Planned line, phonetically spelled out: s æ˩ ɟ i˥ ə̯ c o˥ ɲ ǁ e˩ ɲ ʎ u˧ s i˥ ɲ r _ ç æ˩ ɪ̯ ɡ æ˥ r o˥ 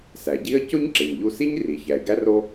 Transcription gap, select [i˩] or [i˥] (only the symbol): i˩